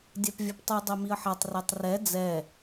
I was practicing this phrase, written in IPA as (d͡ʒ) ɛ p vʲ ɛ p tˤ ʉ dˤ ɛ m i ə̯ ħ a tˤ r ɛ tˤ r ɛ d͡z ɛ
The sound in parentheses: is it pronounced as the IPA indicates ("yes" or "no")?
no